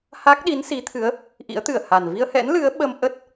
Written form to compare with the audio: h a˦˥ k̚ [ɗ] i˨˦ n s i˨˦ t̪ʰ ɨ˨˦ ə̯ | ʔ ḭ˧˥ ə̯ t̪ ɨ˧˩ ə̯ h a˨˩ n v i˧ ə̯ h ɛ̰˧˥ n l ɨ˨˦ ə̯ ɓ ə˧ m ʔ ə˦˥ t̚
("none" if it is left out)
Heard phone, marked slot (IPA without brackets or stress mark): ɗ